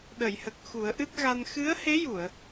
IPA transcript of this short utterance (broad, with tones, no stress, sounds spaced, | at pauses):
ɗ ə˨˩˨ j h ə˨˩ k̚ x u˨˩˦ ə̯ ʔ ɨ˦˥ t̚ ɣ a˧ n x ɨ˧˥ ə̯ h e˧˥ j u˨˩˨ ə̯